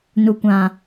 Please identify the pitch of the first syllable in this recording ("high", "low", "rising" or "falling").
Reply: low